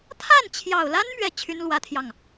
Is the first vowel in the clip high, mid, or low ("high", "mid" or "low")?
low